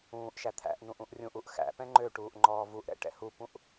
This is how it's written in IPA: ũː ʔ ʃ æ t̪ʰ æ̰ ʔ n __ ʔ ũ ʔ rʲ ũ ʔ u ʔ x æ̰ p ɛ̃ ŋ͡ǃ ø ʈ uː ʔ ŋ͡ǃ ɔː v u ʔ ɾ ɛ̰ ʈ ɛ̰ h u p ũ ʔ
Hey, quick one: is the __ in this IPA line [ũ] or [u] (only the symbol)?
ũ